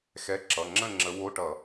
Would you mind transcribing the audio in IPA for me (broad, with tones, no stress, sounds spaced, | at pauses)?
x ɛ˧˥˧ ǁ ʌ˩˧˩ ŋ͡ǁ ə̃˥˨ ŋ͡ǁ ə˨˦ w o˧˥˧ ʈ ʌ˧˩˧